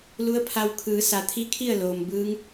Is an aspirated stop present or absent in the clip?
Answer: present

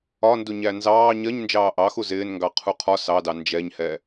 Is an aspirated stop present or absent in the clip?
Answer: present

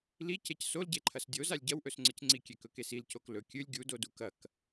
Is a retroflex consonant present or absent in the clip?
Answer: absent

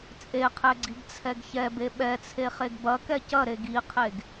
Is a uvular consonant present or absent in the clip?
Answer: present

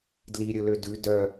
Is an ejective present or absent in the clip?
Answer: absent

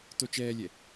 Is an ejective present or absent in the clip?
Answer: absent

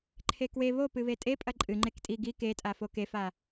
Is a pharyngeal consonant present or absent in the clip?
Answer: absent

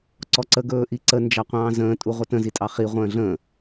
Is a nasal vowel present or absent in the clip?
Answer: present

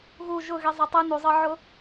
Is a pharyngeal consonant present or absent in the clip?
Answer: present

